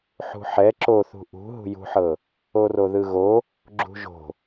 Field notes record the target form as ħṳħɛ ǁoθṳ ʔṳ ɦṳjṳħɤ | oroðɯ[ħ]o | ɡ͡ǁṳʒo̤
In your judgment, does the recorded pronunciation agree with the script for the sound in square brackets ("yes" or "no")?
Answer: no